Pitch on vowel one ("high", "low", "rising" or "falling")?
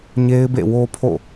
high